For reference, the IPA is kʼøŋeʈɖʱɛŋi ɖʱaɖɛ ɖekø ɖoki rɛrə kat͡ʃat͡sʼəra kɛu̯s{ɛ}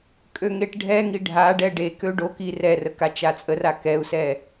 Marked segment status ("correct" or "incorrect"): correct